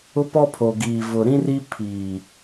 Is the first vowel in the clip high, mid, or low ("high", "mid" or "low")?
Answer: high